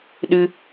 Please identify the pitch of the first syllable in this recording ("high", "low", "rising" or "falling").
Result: high